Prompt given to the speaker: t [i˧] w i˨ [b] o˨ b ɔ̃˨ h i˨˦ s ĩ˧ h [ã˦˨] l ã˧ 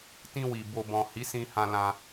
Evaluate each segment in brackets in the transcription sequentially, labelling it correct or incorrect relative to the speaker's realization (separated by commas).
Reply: incorrect, correct, incorrect